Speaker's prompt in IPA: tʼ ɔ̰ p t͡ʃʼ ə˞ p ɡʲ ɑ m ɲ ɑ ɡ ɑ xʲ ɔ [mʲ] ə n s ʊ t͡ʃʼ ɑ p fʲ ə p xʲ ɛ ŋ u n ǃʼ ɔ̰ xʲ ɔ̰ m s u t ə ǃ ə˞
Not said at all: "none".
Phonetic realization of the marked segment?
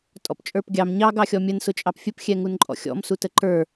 mʲ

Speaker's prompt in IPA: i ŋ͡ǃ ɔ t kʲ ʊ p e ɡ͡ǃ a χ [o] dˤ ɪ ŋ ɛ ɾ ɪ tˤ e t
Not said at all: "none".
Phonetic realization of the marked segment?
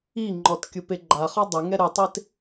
ɔ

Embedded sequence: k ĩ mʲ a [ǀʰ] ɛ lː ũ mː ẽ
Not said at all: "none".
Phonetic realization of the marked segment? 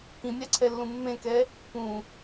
ǀʰ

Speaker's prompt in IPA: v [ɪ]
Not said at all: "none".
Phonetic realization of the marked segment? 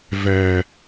ɛ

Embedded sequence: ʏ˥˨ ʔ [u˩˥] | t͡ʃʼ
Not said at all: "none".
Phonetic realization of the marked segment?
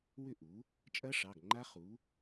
u˩˥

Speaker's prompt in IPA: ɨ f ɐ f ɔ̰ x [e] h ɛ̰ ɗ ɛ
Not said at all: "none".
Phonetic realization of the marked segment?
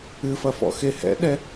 e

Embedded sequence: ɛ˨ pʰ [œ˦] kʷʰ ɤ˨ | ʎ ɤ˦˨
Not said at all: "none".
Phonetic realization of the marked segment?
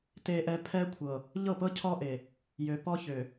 ɛ˦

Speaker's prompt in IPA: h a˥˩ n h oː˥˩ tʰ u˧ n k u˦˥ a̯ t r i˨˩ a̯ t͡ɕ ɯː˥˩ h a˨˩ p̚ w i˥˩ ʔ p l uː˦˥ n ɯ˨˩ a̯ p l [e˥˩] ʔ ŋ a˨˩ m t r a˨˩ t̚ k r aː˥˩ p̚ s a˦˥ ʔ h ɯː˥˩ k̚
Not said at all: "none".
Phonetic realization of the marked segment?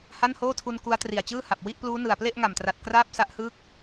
e˥˩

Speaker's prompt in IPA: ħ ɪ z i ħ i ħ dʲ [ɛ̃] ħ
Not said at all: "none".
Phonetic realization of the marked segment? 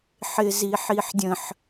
ə̃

